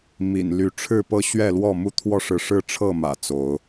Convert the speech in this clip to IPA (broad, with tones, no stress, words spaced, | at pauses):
mḭ˨˩n ly˨˦ʈ͡ʂʰɻ̩˥˨pɤ˦ ɕɥɛ˥˨lwɔ˥˨mu˦ t̪ʰwɔ˦ʂɻ̩˨ʂɻ̩˥˨ ʈ͡ʂʰɤ˥˨mä̰˨˩ t͡so˨˦ʊ̯